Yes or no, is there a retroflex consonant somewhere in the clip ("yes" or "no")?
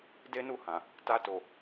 no